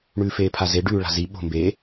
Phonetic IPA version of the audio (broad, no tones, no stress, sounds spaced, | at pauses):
ɳ ʉː f eː pʰ a z e ɖ ʉː ɭ a̤ z i ɓ o̤ m b e